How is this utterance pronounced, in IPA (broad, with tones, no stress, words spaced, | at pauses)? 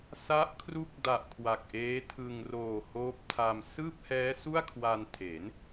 sa˦˥ʔkʰru˦˥k̚da˨˩ʔ kʰwa˨˩k̚ʔeː˦˥tʰɯ˧ŋ roː˨˩ hoː˦˥p̚tʰa˧m sɯː˥˩p̚hɛː˦˥ su˥˩a̯kʰwa˧ntʰe˩˦n